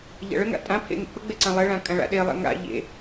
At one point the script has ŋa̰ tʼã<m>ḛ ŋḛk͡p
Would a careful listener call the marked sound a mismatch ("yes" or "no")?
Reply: yes